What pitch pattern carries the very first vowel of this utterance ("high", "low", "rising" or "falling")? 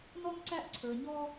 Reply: high